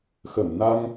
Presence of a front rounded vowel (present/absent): absent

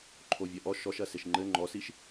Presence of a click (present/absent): present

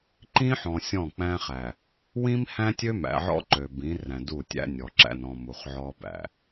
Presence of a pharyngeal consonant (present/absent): present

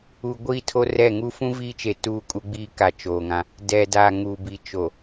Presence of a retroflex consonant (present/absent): absent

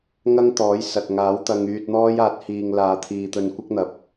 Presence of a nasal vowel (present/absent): absent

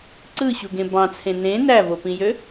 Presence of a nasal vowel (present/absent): present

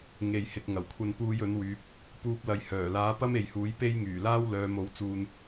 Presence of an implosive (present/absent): absent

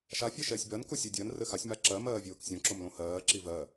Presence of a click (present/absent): present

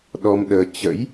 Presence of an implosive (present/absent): present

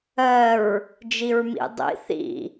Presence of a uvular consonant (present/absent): absent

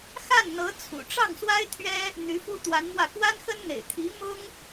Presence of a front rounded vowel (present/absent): present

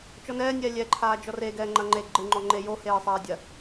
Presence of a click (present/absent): present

